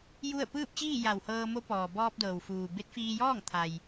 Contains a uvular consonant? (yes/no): no